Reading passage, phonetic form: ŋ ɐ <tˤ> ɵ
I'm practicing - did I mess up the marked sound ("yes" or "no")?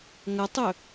no